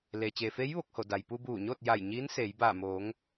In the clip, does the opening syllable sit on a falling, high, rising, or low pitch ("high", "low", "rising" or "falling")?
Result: low